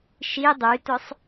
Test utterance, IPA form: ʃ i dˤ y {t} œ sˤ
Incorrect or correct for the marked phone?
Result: correct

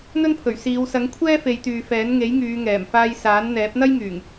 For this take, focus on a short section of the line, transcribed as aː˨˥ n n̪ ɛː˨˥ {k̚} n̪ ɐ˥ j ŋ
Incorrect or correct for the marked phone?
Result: incorrect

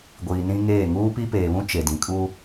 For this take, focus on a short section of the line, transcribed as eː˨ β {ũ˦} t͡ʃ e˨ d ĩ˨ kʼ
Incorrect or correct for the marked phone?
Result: correct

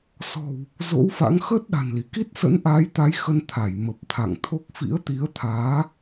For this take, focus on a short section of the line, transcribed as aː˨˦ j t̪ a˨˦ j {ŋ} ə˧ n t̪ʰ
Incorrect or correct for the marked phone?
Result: incorrect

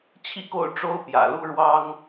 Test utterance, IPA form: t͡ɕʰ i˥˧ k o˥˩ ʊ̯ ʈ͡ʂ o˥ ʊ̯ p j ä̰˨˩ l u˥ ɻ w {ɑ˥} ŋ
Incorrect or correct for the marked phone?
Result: correct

